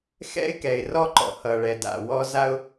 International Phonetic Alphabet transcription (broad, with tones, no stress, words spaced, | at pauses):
xɛ̰˥ɪ̯kɛ˩ɪ̯rɔ˥ǃɔ̰˩ hʌ˩ ɭɛ˩ da̰˩wɔ˥ za˥ʊ̯